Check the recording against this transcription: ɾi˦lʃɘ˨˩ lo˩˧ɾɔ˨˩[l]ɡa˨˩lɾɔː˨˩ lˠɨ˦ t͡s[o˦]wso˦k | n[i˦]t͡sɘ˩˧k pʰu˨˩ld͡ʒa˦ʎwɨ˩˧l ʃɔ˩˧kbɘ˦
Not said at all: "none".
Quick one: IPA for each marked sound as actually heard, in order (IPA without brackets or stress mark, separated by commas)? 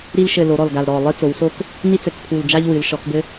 l, o˩˧, i˦